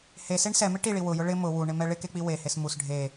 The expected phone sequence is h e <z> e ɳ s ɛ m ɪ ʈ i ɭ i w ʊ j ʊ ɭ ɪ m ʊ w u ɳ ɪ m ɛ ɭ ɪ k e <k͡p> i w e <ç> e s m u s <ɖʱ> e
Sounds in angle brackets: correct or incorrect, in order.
incorrect, correct, incorrect, correct

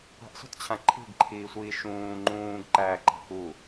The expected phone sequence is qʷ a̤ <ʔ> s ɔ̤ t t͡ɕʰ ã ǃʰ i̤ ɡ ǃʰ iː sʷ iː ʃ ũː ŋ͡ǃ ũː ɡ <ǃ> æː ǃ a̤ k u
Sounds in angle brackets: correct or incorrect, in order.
correct, correct

